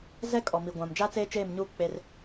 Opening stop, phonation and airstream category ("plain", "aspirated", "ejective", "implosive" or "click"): ejective